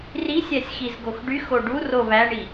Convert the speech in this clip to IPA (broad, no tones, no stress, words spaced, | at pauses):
risʲæsʲ xizɡoxɖyxo ɖu roβæɳi